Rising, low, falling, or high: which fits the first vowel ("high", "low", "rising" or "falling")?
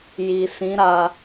low